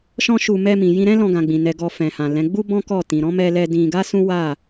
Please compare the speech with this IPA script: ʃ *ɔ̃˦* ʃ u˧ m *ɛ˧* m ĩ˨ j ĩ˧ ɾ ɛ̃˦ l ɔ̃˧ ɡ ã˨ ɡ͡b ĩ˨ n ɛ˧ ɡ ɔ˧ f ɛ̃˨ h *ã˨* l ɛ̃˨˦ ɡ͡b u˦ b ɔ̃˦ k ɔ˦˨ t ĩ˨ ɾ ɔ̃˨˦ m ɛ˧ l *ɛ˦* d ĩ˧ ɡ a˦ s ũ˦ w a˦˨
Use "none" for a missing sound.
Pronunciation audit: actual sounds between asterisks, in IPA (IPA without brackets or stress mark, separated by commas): ɔ̃˦, ɛ˧, ã˨, ɛ˧